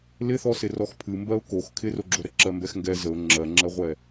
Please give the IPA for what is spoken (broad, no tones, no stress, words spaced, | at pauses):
lɪθɔsɪ rɔxpʰɨmbɜʊ̯ kox kʰɪroɡ͡ǁo ɾəǁɜmbɛxŋɡɛ zəʊ̯ ŋ͡ǁɜŋ͡ǁɜʁʷɛ